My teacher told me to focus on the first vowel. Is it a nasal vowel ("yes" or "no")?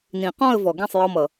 yes